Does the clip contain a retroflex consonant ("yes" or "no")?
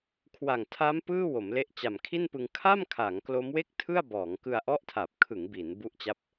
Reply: no